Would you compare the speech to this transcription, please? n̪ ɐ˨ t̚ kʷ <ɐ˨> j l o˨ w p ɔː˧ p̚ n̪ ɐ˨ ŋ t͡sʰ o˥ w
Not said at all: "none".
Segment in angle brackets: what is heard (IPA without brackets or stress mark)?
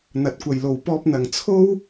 ɐ˨